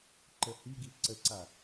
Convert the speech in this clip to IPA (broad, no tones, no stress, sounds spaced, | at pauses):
ǃ ə h i ɡ i ǀ ə ǀ a